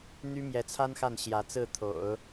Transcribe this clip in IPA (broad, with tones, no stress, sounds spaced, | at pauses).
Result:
n̪ y˥ m j ɛ˧˥ t͡sʰ a˥ n x a˥˩ n ɕ j ä˧˥ t͡s ɹ̩˥˩ t̪ʰ o̰˨˩˦ ʊ̯